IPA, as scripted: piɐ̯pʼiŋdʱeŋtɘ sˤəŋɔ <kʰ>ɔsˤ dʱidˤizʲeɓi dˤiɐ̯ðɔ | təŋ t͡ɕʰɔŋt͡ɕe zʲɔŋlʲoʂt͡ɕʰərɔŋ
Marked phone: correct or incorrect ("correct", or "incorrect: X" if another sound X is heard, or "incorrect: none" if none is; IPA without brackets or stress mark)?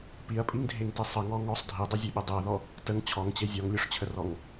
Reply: incorrect: ŋ